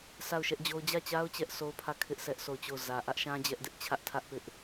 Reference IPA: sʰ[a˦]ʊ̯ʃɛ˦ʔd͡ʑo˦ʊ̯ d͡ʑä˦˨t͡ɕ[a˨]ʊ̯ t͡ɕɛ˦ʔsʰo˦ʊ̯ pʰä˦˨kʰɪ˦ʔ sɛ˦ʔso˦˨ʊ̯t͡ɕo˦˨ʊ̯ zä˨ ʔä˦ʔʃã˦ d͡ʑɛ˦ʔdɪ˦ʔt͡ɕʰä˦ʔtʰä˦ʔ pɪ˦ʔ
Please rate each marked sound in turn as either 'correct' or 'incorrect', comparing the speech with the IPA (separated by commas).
incorrect, incorrect